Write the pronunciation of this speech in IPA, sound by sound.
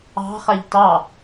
ɑ̤χæʎ tɑ

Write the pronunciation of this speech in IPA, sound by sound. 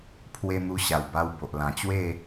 pʰwe˧ n̪u˧ɕa˨˩wba˧w bo˨ʔlã˨˩t͡ɕwe˥˧

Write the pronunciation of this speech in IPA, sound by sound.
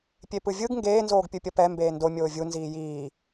pʲepɯvʲɯɡ ŋɡeː nzoːɡpʲɯpʲʌpɛ mbeːndo mʲoːvʲu nziːjiː

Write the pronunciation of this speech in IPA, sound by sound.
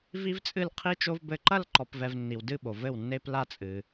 vi˥vt͡sʼɨ˥˧lqʰi˥ t͡ʃo˥vbɘ˥˩ ǃɐ˥˧lǃɔ˨pvɛ˨v nːi˨wdɨ˥˩ɓo˨ vɘ˥˩wnːe˥pla˥ t͡sʼɨ˨

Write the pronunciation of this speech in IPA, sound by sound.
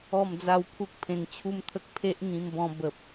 ɔ˥˧md͡za˥˧wpʰu˦k̚ pʰẽ˧ŋt͡ɕʰu˦mt̪ʰə˦k̚ pʰe˦ʔ ŋĩ˧mbɔ̃˧bə˨p̚

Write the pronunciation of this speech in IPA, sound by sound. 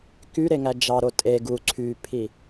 kyɾeŋæ d͡ʒɑɾo tʼe ɡu ǀʰypʰi

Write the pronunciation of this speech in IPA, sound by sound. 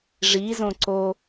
ʐizõ ǀo

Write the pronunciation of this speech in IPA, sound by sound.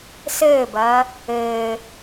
sɘːbɐː | ɘː

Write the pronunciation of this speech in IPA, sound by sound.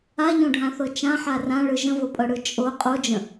aʎõɖʱãθɤ t͡ʃãħa rãɭɯ ʒə̃vopʼɤɽɯ t͡ʃʼo qʼod͡ʒə̃

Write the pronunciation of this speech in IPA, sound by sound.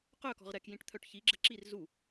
qœkɔ̤ʁ ɾɛkjĩʈ t̪ʰœʈçiɡ͡ǁə ǁir zu

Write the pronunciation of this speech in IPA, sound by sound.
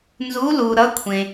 nzu˧˥lu˨ ɾʌ˧˥kʷʰẽ˨

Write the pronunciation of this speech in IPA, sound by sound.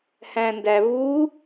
hæ̃ndæ vu

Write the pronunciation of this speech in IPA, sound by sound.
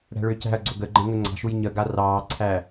ɽæ̤ɭʏːcæ̤ɐ̯ɡ͡ǀɵ ɡəɡ͡ǃə̃ ŋɵŋ͡ǀɑ̤ʃuj ɲəɡa rɑːǀʰæ

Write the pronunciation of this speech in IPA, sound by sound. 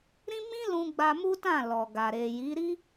ɾĩ˦ mĩ˦lũ˧ɡ͡ba˧ mu˦tã˦˨ lɔ˨ɡa˨ ɾe˨ji˨˦ɾi˦

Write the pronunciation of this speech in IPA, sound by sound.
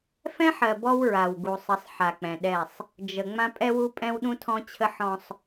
fɛ̃˦ħɜ˨ bɔ˦wɹa˨wɡu˨sˤə˨˦sˤ ħa˨k͡pɛ̃˨ɗɛ˦˨sˤ | d͡ʒə˨ ŋ͡mã˦pʼɛ˦wu˦pʼɛ̃˦w ɗũ˦ tʰɔ̃˦t͡ɕʰə˦ħɔ̃˦sˤ

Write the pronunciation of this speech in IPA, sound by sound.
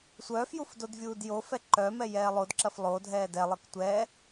sʷœːfjuf dodvʲuːdjofɛ ǃœ mɛjɛːlˠodǁɐf lˠodʱɛː dɛlˠɤk tʷɛː

